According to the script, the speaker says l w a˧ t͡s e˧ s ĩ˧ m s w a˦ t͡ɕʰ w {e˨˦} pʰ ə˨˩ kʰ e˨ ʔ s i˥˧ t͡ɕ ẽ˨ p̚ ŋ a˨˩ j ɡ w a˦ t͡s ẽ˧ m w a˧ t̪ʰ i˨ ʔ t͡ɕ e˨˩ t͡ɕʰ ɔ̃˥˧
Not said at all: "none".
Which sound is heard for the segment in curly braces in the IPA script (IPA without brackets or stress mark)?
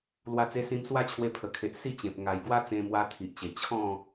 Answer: e˧